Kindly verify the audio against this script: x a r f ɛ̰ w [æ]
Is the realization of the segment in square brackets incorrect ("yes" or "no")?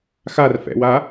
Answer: yes